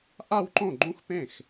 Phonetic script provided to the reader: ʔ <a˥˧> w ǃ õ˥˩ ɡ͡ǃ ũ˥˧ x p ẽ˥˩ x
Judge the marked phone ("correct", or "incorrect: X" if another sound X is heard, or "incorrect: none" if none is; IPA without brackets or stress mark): correct